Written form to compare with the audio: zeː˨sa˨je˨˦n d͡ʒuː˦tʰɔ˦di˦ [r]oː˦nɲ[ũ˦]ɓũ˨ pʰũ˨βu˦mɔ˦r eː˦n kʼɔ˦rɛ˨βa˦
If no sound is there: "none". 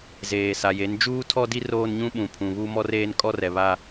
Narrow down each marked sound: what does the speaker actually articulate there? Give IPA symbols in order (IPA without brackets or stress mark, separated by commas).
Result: r, ũ˦